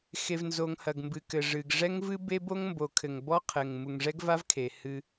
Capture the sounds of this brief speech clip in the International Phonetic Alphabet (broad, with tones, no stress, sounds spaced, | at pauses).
x e˨ v n z o˨ ŋ h ɐ˨ ɡ m b ɨ˨ k ɘ˨ ʐ ɨ˨ ɡ ʐ ɛ˦ ŋ v ɨ˦ b e˦ b o˦ ŋ m b o˨ kʰ ɘ˨ ŋ b ɔ˦ qʰ ɘ˨ ŋ m u˨ ŋ ʐ ɛ˦ ɡ v a˦ v kʰ e˨ h ɨ˦